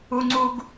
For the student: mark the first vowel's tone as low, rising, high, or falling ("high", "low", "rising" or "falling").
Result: low